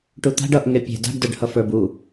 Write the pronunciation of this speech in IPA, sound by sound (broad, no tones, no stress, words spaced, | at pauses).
ʈut̪a̤ɖ ʌʔŋe pʲe̤ da̤ɖdə˞ɖhʌ fə˞bu